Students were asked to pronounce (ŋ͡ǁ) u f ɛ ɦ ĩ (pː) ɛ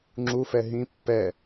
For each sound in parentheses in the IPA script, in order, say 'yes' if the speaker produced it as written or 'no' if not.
yes, yes

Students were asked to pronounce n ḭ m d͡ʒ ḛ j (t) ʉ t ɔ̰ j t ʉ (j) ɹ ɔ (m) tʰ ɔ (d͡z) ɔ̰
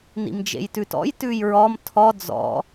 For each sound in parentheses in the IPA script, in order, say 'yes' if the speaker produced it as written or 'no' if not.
yes, yes, yes, yes

